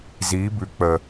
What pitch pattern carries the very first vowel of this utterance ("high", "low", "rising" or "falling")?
rising